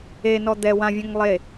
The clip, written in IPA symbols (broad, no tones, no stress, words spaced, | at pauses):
enɔ d̪ɛ wãvʲɛ̃ŋ lˠe